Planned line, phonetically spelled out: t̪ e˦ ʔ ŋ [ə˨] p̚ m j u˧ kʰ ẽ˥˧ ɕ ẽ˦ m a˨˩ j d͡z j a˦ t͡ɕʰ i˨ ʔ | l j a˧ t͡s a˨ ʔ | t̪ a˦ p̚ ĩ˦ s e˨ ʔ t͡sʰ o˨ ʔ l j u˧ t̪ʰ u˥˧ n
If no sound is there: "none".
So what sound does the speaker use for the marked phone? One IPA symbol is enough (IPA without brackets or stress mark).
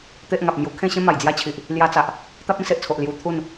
a˨